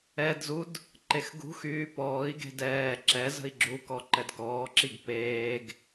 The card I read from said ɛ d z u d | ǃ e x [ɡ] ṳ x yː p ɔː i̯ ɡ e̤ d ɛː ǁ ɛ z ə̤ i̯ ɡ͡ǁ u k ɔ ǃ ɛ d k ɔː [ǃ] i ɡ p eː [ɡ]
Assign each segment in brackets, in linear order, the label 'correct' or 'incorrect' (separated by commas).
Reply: correct, incorrect, correct